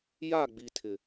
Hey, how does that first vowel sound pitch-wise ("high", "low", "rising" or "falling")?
falling